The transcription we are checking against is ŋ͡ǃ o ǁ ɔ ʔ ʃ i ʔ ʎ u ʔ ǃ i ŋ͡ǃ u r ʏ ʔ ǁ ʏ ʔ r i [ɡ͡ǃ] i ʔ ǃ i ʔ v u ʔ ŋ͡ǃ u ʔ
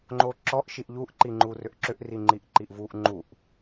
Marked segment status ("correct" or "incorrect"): incorrect